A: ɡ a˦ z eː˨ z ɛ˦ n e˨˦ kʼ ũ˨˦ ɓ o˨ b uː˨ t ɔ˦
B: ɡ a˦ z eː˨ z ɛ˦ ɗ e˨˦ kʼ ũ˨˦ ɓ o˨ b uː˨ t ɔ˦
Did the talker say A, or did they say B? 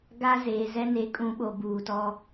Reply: A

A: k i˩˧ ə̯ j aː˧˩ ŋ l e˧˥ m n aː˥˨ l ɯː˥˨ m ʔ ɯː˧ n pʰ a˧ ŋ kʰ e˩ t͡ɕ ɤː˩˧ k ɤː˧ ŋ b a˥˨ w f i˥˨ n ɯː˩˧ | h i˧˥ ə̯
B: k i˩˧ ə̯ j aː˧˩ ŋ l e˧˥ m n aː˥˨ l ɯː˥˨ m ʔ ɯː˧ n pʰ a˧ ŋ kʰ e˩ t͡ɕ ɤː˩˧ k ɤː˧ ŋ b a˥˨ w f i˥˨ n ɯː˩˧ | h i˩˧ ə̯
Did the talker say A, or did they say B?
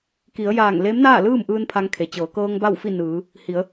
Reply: B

